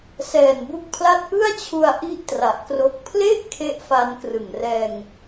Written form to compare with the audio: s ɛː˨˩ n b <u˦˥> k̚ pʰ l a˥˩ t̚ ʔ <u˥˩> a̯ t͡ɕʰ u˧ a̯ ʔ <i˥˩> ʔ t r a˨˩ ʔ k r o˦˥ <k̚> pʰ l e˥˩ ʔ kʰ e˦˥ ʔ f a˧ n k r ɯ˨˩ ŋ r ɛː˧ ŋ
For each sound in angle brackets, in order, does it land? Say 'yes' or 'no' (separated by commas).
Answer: yes, no, no, yes